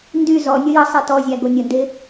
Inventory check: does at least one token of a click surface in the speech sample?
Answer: no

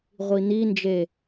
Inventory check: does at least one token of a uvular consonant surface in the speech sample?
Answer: yes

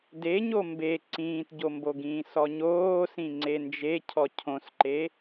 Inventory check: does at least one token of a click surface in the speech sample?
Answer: yes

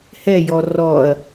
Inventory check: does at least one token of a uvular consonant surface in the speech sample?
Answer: no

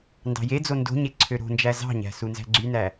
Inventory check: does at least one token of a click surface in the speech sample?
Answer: yes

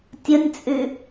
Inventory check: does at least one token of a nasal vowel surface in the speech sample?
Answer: no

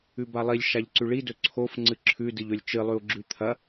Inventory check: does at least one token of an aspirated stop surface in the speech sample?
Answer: yes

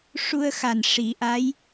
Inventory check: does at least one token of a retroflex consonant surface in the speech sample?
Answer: yes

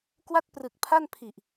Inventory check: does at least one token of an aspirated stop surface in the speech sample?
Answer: yes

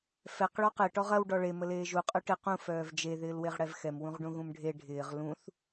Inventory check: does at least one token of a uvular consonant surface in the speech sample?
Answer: yes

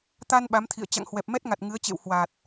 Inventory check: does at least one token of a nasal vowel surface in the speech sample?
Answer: no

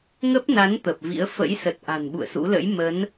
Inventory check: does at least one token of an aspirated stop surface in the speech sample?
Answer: no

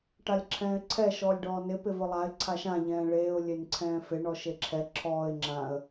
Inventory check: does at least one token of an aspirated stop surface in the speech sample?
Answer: yes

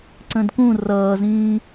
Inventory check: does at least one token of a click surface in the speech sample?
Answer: yes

